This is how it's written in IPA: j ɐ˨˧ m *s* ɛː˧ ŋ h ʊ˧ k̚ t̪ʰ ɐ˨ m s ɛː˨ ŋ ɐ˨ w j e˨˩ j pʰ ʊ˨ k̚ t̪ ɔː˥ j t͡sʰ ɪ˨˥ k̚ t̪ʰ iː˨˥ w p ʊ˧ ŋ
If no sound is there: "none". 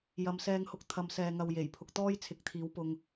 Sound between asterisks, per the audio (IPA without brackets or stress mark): s